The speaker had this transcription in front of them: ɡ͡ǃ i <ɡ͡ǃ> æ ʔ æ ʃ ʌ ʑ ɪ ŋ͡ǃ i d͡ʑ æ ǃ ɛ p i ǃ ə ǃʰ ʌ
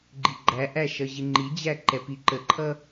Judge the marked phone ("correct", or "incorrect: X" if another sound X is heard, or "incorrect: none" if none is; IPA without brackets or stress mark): correct